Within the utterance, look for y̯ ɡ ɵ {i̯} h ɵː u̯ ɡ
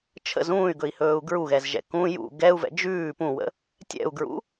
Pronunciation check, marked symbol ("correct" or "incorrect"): correct